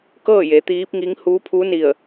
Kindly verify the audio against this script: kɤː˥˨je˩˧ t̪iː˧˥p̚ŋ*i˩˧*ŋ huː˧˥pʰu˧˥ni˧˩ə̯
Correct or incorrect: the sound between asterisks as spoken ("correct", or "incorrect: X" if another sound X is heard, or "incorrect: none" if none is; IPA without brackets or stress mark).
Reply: incorrect: i˧˥